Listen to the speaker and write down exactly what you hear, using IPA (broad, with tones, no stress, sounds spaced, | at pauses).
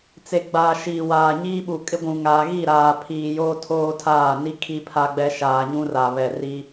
t͡s e˨ ɡ͡b aː˨ ʃ iː˨ w aː˨ ɲ iː˦ ɓ u˨ kʼ ɪ˦ ɡʷ ũ˨ ŋ aː˨ ɣ i˦˨ ɾ aː˨ pʰ iː˨ j oː˦ tʰ oː˦ tʰ aː˦˨ n i˦ kʰ i˦ pʰ a˦ ɡ͡b ɛ˦ ʃ aː˨ ɲ ũ˦ r a˨ β ɛ˨ r i˦